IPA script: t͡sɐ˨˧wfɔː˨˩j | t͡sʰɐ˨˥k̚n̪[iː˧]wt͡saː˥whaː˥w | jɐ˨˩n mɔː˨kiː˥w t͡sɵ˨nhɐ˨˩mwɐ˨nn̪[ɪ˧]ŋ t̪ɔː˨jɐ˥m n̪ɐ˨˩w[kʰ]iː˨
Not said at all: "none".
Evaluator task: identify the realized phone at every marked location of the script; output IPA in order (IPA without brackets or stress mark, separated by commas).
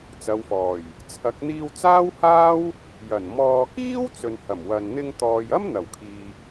iː˧, ɪ˧, kʰ